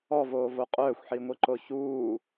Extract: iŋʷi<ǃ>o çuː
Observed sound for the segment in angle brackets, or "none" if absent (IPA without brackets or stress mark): ǃ